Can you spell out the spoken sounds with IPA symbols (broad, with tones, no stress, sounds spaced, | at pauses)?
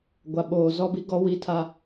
ɡʷ a˨ ɓ oː˨ z ɔ˦ b i˦ ɡ ɔ˦ w i˦ tʰ a˦